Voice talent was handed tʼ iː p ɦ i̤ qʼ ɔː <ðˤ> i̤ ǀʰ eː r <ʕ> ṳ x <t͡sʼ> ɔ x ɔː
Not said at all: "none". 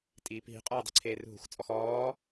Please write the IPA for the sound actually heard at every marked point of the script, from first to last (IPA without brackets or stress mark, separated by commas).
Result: dˤ, ɦ, t͡sʼ